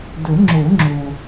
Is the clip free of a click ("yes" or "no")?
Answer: no